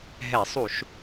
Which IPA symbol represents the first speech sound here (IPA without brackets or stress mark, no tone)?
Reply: ɦ